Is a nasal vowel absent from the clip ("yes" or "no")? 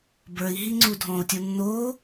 no